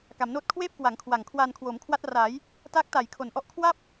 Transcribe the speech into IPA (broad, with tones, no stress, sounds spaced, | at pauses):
k a˩˦ m n oː˥˩ t̚ kʰ w eː˥˩ p̚ k w a˩˦ ŋ kʰ w a˨˩ ŋ kʰ w aː˧ n kʰ w oː˩˦ m kʰ w a˦˥ t̚ r aː˩˦ j | t aː˦˥ k̚ t a˩˦ j kʰ o˩˦ n ʔ ɔ˦˥ ʔ kʰ w a˥˩ p̚